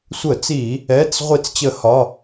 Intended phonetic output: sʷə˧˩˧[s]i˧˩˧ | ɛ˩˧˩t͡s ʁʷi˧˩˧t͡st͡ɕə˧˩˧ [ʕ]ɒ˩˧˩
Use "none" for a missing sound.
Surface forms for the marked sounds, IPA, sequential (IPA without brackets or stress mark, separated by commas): t͡s, h